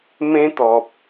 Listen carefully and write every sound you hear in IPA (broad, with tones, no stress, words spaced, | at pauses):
mẽ˦t̪ɔ˨p̚